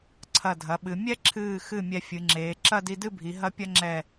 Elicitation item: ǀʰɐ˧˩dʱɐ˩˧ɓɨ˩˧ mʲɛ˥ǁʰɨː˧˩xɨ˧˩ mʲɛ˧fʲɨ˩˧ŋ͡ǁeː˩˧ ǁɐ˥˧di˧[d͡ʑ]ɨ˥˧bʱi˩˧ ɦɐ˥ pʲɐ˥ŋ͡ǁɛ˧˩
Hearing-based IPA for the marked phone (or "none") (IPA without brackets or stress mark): d